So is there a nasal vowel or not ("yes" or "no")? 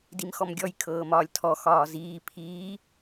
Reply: no